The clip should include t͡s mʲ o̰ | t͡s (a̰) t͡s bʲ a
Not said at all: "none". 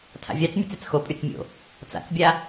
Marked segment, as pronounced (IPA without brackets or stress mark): a̰